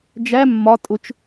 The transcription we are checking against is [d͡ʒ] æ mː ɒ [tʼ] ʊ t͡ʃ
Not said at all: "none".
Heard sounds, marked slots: d͡ʒ, tʼ

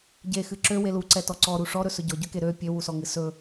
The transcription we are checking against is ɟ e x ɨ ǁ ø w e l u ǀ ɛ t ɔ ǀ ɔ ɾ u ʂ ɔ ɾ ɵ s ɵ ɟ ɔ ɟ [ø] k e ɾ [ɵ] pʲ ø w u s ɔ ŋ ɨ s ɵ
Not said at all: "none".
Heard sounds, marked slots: ø, ø

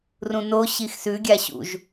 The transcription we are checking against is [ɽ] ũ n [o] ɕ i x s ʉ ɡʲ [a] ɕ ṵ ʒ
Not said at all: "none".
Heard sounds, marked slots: r, o, a

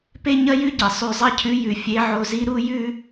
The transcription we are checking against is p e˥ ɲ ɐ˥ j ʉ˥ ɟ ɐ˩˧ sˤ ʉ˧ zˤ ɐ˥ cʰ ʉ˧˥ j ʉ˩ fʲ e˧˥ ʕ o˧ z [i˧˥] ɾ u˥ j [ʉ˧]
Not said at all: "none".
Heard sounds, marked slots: i˥, ʉ˥

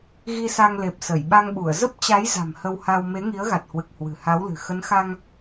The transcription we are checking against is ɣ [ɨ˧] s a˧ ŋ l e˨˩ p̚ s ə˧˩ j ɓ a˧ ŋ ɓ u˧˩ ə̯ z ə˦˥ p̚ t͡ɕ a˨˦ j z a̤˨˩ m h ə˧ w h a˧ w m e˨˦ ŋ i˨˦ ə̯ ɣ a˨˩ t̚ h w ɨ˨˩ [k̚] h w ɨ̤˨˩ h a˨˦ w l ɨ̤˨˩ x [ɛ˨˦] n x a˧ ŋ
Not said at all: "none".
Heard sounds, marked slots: i˧, k̚, ə˨˦

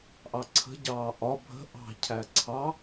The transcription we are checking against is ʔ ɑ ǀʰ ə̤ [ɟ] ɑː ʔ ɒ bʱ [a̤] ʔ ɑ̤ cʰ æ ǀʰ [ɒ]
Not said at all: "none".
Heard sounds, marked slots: ɟ, ə̤, ɑ

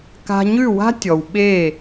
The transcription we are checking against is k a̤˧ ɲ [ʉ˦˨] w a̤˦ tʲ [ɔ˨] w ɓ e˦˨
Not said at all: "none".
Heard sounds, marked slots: ʉ˦˨, ɔ˨

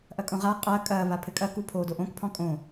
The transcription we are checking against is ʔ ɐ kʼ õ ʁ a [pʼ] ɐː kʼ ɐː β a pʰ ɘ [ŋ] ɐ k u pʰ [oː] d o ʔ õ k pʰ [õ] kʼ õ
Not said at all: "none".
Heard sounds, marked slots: qʼ, kʼ, oː, ɔ̃

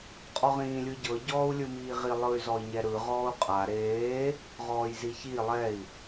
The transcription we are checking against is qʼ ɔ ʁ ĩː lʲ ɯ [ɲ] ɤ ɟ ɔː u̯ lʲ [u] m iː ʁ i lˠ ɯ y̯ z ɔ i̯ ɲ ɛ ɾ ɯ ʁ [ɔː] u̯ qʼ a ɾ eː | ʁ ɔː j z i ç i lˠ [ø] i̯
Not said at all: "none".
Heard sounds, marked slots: ɟ, ɯ, ɔː, ɛ

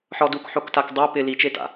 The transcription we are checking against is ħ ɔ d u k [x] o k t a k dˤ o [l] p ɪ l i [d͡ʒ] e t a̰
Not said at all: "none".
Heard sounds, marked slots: ħ, none, t͡ʃ

